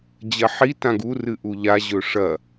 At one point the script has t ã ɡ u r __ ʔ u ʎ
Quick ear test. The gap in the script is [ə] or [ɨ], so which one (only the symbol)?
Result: ɨ